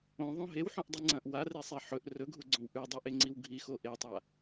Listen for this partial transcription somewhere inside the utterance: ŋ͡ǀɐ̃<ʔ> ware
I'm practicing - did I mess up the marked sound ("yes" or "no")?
no